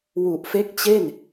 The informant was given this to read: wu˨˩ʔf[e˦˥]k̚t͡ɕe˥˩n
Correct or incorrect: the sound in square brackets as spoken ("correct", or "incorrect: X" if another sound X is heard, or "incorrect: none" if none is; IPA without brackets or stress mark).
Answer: correct